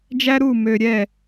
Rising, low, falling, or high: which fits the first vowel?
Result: high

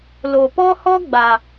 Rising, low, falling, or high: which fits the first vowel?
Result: low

